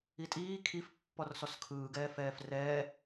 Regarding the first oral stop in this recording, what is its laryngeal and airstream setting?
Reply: ejective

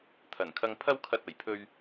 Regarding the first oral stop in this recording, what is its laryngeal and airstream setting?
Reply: aspirated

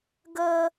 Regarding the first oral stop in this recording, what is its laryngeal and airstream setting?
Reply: plain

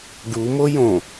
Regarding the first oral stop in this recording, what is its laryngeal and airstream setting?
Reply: plain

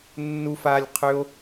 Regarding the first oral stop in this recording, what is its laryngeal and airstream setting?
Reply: aspirated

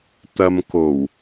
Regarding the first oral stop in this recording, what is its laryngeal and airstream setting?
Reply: plain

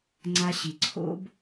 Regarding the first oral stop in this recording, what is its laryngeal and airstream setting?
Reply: click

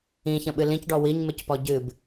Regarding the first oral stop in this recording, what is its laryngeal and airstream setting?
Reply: implosive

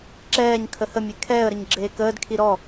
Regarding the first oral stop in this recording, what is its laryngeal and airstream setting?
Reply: click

